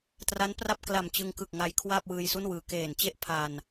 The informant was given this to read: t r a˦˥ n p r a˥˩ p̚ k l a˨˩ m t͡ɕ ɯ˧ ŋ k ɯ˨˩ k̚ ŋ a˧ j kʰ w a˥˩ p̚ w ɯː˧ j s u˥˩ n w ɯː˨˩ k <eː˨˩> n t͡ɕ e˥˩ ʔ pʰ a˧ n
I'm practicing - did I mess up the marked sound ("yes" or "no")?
no